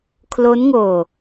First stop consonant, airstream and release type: aspirated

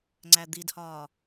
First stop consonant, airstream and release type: click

